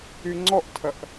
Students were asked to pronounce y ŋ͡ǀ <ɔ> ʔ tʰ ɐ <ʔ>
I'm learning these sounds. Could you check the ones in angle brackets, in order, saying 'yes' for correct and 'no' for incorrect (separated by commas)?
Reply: yes, yes